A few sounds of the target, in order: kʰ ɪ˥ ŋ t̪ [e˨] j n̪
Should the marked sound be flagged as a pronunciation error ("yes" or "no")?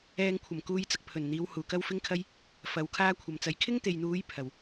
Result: no